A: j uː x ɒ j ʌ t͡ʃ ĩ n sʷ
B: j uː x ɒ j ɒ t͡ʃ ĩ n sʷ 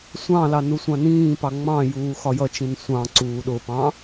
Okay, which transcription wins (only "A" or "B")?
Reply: A